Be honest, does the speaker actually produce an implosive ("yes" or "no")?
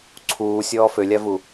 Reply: no